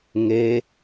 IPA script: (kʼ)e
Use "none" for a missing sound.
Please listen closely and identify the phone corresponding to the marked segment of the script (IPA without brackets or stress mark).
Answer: ŋ